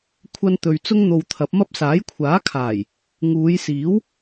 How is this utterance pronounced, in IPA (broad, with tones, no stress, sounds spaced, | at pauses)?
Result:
kʷʰ ɐ˥ n t̪ ɵ˧ ɥ t͡s ʊ˥ ŋ n̪ o˧ w t̪ʰ ɐ˨˥ p̚ m ɐ˥ p̚ s aː˨˥ j kʷʰ aː˨˥ kʰ aː˨˩ j | ŋ uː˨˧ j s iː˨˥ w